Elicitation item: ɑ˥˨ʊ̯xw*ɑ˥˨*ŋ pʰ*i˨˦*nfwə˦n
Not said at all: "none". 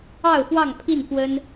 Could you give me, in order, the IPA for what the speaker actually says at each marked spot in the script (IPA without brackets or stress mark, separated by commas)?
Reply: ɑ˥˨, i˥˨